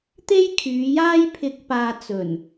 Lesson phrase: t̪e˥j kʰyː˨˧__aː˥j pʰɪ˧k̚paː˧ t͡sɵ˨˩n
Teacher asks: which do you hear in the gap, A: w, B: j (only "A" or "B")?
B